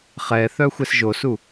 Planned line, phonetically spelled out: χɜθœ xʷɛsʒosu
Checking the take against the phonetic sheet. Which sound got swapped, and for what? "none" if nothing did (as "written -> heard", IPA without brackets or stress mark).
ɜ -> ɛ